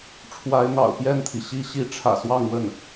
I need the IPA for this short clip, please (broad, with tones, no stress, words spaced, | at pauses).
ʈ͡ʂʰwa˧˥ɪ̯n̪ɑ̰˨˩ʊ̯ pjɛ˥˩nt̪ʰi˩ɕi˥ ɕi˧˥ʈ͡ʂʰä̰˨˩ swɑ˥˧ŋwə˥˩n